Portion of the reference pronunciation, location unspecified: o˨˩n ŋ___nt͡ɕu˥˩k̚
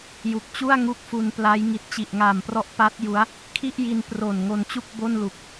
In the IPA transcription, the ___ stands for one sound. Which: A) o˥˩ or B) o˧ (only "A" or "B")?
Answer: B